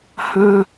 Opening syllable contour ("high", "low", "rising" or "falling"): high